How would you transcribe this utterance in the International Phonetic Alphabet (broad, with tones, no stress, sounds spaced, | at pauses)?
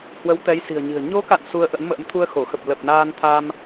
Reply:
h w ə˨˦ w t̪ ɛ˨˦ j s i̤˨˩ ə̯ ɲ i̤˨˩ ə̯ ɲ o˨˦ k a̰˧˨ n s u˧ ə̯ ʔ ə̰˧˥ n m ə̰ː˧˥ m t̪ʰ u˧ ə̯ x o˧˩ x ə˨˩ p̚ l ə˨˩ p̚ n aː˧ n t̪ʰ a˧ m